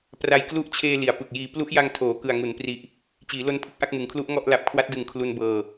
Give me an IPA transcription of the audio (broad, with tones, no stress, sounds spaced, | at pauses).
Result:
p r a˧ j k l u˦˥ ʔ t͡ɕʰ eː˧ l i˩˦ a̯ p ɯ˨˩ k̚ j iː˧ p l u˦˥ ʔ j a˧ ŋ tʰ oː˩˦ k ɯ˨˩ a̯ ŋ u˩˦ n p r i˨˩ ʔ | t͡ɕ iː˩˦ l o˦˥ n pʰ ɯ˥˩ k̚ ʔ a˥˩ k̚ m ɯ˩˦ ŋ kʰ l u˦˥ ʔ ŋ ɔ˥˩ ʔ l a˨˩ p̚ kʰ w a˦˥ t̚ d ɯ˨˩ ŋ kʰ l u˧ n b ɤː˧